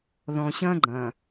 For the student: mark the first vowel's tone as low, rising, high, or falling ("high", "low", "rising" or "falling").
low